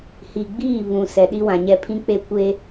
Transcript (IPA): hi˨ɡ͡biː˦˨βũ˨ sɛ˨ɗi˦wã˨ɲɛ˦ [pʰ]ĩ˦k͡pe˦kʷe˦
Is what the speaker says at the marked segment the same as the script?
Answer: yes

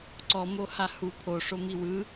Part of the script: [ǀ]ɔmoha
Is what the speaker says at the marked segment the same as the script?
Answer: yes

